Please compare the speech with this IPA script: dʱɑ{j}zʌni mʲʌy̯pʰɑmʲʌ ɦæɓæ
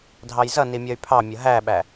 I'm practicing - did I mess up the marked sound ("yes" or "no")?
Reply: no